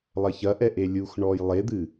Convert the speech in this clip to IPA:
lˠ ɐ ç ɐ ʔ ɛ ʔ e lʲ u x ɳ ɔ j lˠ e d̪ ɨ

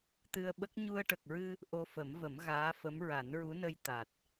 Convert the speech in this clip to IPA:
t̪ ɨ˧ ə̯ ɓ ə˦˥ k̚ ɲ u˧ ə̯ ʈ ə˨˩ k̚ ɹ ɨ˧ | ʔ o˧ f ə˨˩˦ m v ə˨˩˦ m ɣ aː˧˥ f ə˧˥ m ɹ a˨˩˦ n ɹ u˧˥ n ə˧ j t̪ a˨˩ t̚

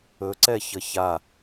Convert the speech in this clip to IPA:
ɵ ǀ ɛ ç ə ç a

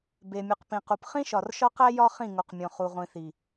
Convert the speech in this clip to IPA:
b e˨ mʲ u˨ q p ĩ˨ q u˨ p χ ĩ˦ ʃ ɒ˨ r ʃ ɒ˦ q æ˦ j ɒ˦ χ ĩ˦˨ ŋ u˨ q mʲ õ˨ χ u˨ ʁʷ ĩ˨ θ i˨

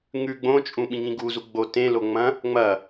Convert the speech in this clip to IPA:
ŋ ʉ ɡ͡b õ t͡ʃʼ ũ ɓ ĩ ŋ ĩ ɡ u z u ɡ͡b o t ẽ l o ŋ͡m ɐ̃ | ŋ͡m ɐ

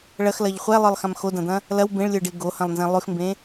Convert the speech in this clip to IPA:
ɭ ɐ x l ɐ ʎ χʷ ɛ lˠ ə˞ lˠ x ã m x o d ɐ̃ d̪ ɐ̃ | l ɐ w b ẽ ɭ lʲ ə˞ ɖ e ɡ o h ɐ̃ lˠ n z ẽ lˠ ʉ x m b ẽ

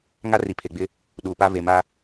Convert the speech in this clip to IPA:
ŋ a˦ r i˨ pʰ e˨ ɡ͡b ɪ˦ | ɗ uː˨ p a˦ v e˨ m a˦

